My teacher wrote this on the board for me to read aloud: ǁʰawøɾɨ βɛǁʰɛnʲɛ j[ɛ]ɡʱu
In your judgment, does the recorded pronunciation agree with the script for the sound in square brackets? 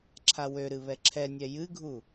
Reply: no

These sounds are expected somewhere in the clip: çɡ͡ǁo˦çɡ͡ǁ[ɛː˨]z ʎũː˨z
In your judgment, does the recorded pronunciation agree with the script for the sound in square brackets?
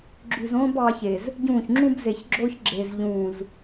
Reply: no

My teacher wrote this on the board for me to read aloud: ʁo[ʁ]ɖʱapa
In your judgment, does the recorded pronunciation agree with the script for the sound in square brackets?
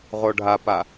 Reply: no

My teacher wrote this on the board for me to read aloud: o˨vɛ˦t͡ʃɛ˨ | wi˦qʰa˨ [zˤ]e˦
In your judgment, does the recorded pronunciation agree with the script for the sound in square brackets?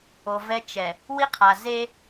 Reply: no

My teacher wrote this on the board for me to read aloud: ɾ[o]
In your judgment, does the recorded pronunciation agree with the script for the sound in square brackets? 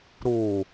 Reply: no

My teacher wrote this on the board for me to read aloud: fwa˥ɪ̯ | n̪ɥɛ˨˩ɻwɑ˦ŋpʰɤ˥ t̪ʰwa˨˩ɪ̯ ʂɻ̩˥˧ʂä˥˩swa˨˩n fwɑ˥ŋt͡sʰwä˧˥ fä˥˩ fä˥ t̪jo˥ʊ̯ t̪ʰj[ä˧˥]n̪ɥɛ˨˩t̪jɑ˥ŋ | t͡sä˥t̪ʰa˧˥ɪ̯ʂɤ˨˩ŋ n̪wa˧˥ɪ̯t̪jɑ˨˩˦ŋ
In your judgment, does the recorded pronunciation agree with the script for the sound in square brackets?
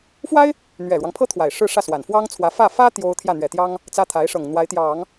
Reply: no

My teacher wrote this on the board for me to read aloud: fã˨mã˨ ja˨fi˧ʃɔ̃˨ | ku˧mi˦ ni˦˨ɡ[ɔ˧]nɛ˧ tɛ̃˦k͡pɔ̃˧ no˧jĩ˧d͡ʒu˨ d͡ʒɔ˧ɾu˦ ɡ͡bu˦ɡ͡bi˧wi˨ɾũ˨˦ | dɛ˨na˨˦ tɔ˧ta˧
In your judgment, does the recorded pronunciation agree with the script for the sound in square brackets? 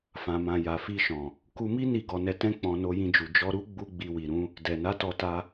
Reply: yes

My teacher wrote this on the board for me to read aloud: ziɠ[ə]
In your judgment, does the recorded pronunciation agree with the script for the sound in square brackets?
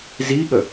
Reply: yes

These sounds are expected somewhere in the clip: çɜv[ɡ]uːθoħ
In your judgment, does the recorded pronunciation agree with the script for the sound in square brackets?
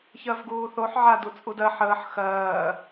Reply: yes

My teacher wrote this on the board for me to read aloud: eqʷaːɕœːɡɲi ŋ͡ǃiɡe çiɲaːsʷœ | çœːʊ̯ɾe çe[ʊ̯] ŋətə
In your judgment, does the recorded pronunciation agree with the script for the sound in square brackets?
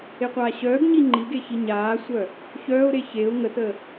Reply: yes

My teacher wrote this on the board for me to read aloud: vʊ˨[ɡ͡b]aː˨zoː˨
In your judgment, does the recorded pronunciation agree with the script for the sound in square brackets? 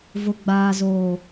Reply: yes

